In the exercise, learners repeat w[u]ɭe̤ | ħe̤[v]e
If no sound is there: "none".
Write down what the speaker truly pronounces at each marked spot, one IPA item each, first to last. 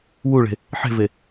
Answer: u, v

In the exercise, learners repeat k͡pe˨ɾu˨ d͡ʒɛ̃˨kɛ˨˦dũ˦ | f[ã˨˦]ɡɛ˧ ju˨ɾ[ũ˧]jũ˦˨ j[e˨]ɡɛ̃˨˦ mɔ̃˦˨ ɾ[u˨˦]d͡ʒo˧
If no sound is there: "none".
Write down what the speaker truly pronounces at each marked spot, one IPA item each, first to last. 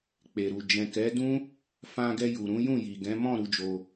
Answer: ã˧, ũ˨˦, i˨, u˨˦

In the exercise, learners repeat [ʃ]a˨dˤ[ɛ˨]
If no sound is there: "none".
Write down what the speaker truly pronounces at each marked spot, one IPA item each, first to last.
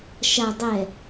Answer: ʃ, ɛ˨

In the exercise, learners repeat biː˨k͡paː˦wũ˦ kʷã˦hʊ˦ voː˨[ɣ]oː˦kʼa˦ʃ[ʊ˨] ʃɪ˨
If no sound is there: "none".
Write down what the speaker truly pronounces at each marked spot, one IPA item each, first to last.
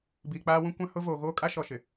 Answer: ɣ, ɔ˨

